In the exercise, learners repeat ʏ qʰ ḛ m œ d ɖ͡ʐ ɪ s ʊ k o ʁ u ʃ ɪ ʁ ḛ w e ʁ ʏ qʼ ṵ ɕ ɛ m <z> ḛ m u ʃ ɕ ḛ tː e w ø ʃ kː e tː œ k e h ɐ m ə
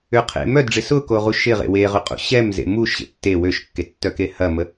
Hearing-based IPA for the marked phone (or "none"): z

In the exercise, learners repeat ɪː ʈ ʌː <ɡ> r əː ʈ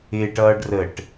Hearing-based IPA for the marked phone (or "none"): ɖ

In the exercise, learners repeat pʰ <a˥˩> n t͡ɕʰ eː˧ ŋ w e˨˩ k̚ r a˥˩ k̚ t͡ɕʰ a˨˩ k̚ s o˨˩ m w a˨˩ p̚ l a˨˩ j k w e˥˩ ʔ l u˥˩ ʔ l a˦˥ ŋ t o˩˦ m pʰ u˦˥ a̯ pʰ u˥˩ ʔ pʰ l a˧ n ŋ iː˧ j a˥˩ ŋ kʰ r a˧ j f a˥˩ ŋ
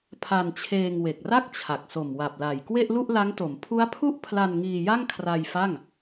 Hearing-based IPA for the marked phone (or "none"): a˧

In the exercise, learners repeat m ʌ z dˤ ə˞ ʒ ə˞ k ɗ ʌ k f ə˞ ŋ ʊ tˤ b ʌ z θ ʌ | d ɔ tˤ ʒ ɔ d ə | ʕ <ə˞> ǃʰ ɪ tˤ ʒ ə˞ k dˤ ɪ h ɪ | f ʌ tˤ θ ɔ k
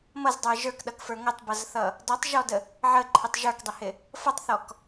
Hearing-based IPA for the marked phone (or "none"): ə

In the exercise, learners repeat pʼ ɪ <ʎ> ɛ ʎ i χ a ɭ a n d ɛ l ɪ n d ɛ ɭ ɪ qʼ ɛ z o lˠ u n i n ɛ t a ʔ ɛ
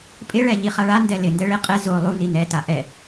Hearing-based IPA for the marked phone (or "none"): ɭ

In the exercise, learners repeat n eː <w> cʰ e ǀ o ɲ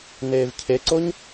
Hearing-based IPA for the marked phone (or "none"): v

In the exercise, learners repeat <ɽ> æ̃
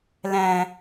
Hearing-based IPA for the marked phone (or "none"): l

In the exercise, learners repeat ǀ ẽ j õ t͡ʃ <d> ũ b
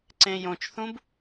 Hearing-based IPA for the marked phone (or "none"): θ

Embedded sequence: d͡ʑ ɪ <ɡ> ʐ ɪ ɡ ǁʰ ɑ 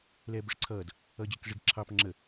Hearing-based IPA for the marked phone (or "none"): k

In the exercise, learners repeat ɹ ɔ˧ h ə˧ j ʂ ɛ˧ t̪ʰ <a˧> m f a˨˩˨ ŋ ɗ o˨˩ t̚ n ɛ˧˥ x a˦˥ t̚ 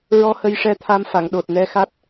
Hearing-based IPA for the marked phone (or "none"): a˧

